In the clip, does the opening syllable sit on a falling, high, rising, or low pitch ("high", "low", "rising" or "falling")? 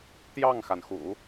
falling